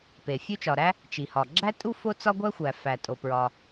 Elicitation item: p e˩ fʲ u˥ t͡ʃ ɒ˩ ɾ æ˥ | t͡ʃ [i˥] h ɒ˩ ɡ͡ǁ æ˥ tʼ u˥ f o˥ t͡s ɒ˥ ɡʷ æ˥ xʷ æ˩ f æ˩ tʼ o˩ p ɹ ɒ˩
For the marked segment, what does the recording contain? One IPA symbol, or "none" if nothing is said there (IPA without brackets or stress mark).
i˩